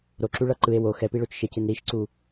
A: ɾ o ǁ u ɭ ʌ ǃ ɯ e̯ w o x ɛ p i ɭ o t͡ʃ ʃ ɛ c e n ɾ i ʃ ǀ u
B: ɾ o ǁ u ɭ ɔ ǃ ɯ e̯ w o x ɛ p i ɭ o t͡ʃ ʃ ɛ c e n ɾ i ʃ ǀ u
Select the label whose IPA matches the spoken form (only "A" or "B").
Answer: A